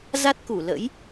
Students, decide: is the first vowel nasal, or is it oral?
oral